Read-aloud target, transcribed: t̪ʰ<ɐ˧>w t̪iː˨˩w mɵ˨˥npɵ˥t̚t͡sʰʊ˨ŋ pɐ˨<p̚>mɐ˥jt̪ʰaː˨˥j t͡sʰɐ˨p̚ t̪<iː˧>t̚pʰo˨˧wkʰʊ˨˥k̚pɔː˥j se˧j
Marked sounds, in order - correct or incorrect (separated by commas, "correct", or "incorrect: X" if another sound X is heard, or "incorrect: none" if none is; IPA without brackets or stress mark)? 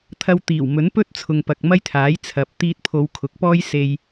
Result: correct, incorrect: k̚, correct